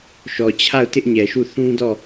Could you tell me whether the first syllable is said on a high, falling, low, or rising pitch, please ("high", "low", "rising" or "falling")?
low